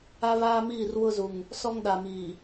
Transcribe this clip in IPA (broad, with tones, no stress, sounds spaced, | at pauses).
a˦ β aː˦ m iː˦˨ r w ʊ˦ z u˨ ŋ | s ɔ˦ ŋ ɗ a˨ m iː˨